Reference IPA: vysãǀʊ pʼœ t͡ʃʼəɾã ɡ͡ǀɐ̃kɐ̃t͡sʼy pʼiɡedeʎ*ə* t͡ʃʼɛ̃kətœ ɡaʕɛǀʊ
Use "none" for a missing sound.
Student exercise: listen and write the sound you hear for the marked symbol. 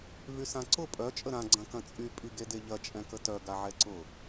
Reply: ɐ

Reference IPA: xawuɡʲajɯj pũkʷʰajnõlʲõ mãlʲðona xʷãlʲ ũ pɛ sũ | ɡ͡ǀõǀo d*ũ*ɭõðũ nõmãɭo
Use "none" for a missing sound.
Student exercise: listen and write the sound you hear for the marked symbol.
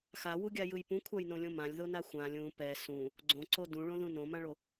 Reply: ũ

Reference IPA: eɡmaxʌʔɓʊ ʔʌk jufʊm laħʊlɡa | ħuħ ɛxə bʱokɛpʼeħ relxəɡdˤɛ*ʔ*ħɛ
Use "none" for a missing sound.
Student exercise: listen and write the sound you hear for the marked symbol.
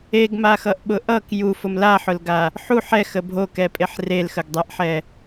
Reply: ʔ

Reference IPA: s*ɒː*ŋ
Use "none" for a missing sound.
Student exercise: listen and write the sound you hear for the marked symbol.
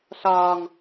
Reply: ɒː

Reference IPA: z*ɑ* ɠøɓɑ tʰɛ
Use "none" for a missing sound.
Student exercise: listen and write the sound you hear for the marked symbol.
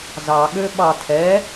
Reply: ɑ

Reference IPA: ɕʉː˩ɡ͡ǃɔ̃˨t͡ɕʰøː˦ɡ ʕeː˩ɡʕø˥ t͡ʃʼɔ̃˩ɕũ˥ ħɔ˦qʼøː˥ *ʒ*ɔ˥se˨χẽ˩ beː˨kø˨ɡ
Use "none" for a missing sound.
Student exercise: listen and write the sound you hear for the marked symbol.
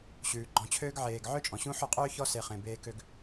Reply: ç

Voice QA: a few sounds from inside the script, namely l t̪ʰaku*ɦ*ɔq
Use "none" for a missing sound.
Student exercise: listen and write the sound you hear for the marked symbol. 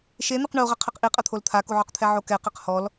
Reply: ʕ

